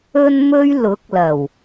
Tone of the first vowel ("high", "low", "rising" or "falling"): high